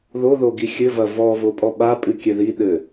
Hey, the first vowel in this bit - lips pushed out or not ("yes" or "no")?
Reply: yes